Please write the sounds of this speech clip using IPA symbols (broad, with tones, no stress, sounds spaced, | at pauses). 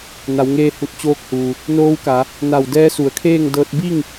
n a˩˧ w ŋ eː˧ h u˧˩ t̚ t͡ɕ oː˧˥ k̚ h uː˩ | n oː˧˥ w k a˩˧ | n a˧˩ w d ɛː˧˥ s u˩ ə̯ kʰ eː˥˨ ŋ d ɤː˧ t̚ b i˥˨ ŋ